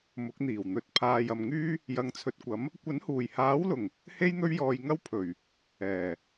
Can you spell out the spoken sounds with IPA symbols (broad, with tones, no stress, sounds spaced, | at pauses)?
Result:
m ʊ˨˥ k̚ n̪ iː˨˩ w n̪ ɵ˨˥ t̚ pʰ aː˨ j ɐ˨ m ŋ yː˥ | j ɐ˨˧ ŋ t͡sʰ ɵ˨ t̚ kʷ ɐ˨˥ m | kʷ ɐ˨˥ n h uː˨˩ j h aː˨˥ w l ʊ˨˩ ŋ | h e˥ j n̪ ɵ˥ ɥ j ɔː˧ j ŋ ɐ˥ w pʰ ɵ˨˩ ɥ | ɛː˨˩